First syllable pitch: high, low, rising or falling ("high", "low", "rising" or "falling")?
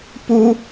high